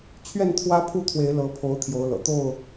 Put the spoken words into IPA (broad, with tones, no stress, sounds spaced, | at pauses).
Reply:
t͡ɕʰ ɥ ɛ˥˨ n t̪ʰ w ä˦ pʰ u˥˨ t̪ʰ w e˨˦ ɪ̯ l ɤ˨˦ pʰ o˨˦ ʊ̯ t̪ʰ j o˨˦ ʊ̯ l ɤ̰˨˩ t̪ o˥˨ ʊ̯